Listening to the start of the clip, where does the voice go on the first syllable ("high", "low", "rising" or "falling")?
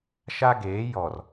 high